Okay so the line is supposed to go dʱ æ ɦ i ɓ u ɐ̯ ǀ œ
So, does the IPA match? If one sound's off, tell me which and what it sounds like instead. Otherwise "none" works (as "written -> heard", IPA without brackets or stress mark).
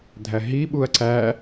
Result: œ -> æ